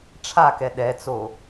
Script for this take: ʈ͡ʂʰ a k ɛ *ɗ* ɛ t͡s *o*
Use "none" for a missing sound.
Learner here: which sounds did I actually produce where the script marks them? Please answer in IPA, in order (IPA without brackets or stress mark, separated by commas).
ɗ, o